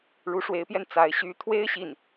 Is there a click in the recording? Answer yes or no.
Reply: no